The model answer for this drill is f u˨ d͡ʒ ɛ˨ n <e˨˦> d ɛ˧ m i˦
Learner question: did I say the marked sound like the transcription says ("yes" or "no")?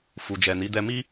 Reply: no